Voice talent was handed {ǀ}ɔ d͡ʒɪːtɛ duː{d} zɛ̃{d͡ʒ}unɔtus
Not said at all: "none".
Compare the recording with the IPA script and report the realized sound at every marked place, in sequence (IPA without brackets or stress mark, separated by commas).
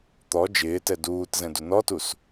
t̪, t, d